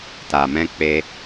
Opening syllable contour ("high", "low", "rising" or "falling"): low